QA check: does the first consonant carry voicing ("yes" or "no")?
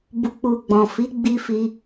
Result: yes